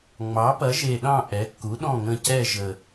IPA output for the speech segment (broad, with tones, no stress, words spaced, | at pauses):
ŋ͡mɑ˩˥pɐ˩˥ʒe˨˩ɗɑ̃˦˨ ʔɛ˩˥kːu˩˥ɗɔ̃˦˨ŋə̃˦˨ cɛ˦˨ʒə˨˩